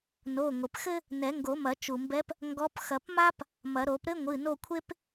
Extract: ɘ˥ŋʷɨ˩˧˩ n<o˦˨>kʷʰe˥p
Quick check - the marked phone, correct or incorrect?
correct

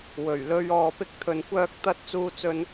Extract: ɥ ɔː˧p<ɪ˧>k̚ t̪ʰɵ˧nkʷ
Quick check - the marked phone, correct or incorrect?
incorrect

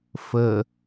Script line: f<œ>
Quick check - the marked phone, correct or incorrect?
incorrect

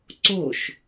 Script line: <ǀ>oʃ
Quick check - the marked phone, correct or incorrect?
correct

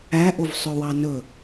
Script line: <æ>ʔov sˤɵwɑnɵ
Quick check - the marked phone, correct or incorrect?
correct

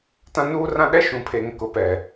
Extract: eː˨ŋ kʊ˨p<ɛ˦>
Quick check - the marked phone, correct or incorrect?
incorrect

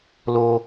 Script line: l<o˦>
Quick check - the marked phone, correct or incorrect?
correct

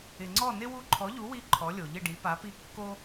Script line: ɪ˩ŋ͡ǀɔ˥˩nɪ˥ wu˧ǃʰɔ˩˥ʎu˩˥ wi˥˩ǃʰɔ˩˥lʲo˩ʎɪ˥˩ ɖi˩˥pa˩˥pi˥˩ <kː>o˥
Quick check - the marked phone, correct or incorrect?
correct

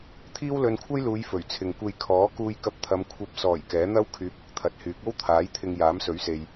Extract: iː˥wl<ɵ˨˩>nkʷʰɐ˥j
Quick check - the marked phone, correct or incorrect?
incorrect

